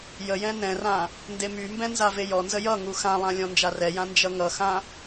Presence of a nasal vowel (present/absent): present